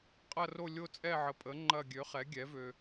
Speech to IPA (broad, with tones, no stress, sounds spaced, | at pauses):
qʼ ɐ˦˨ r o˦˨ lʲ o˦˨ t͡sʼ ɛ˦˨ ʕ ə˨ pʼ ə˩˥ ŋ͡ǃ ɐ˦˨ ɡʲ ø˩˥ χ ɛ˩˥ ɡʲ ɛ˩˥ v ø˨